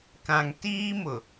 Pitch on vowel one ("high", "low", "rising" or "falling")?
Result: low